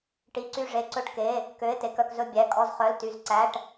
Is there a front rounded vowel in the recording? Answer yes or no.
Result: yes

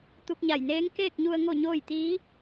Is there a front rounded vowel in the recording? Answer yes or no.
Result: no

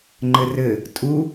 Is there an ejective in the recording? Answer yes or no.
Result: yes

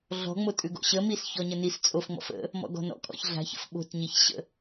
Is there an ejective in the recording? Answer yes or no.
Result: yes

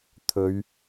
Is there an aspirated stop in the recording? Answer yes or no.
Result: yes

